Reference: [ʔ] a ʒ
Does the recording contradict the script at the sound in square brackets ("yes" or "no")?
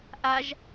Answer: no